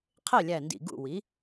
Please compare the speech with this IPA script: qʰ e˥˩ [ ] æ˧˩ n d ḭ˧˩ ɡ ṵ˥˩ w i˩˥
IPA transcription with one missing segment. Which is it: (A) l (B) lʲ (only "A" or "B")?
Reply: B